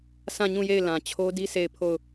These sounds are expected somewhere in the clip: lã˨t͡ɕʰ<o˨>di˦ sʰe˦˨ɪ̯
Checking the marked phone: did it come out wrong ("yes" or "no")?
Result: yes